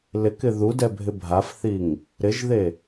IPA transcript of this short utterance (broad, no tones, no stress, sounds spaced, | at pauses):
l ɪ k ɪ ð u d ɛ bʱ ɪ bʱ a f θ i ŋ | ɾ ɪ ʒ ð e